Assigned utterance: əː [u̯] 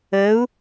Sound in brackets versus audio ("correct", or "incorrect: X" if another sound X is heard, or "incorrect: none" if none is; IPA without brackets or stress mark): correct